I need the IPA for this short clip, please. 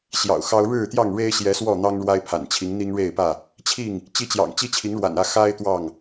ɕ j ɑ̰˨˩ ʊ̯ x ɑ˦ ʊ̯ ɻ ɻ̩˥˨ t̪ j ɑ˥˨ ŋ ɻ e˦ ɪ̯ ɕ j ɛ˨˦ s w ɔ˥˨ n̪ ɑ˦ ŋ ɻ w a˦ ɪ̯ pʰ a̰˨˩ n t͡ɕʰ i˨˦ ŋ n̪ i˦ ŋ ɻ e˥˨ ɪ̯ p ä˥˨ | t͡ɕʰ i˥˨ ŋ | t͡ɕ i˦ t͡ɕ j ɑ̰˨˩ ŋ t͡ɕ i˦ t͡ɕʰ i˨˦ ŋ ɻ w a̰˨˩ n ä˥˨ x a˦ ɪ̯ t̪ w ɑ˥˨ ŋ

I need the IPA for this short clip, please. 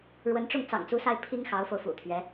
ɻ w ə˧˥ n ʈ͡ʂ ʊ˥˩ ŋ t͡s ɑ̰˨˩ ŋ t͡s u˧˥ s a˧ ɪ̯ pʰ i˥ ŋ x ɑ˧˥ ʊ̯ f o˧ ʊ̯ f ṵ˨˩ t̪ʰ ɥ ɛ˧˥

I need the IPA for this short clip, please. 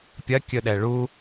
pʲ ɐ kʲ ɵ ɗ ɛ ɭ u

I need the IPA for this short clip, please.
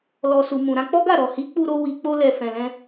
l ɔ˨ s u˨ m ũ˨ ɾ ã˧ k͡p ɔ˦ ɡ a˦˨ ɾ ɔ˨ h i˨˦ k͡p u˧ ɾ o˧ w i˨ k͡p o˧ l ɛ˨ f ɛ̃˨ l ɛ̃˧

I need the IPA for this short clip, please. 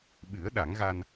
ɓ ɨ˨˩˦ ə̯ ɗ a˨˩˦ ŋ ɣ a˧ n

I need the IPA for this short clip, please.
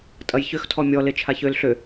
tʼ ɐ j ç ʏ x tʰ ɔ mʲ ɔ l e t͡ʃʰ a ç ø l ɬ ø

